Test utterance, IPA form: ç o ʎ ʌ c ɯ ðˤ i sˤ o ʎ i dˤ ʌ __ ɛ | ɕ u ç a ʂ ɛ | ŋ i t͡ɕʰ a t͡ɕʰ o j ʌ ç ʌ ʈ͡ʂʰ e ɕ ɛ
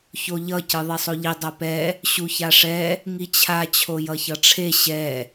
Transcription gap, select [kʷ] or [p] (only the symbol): p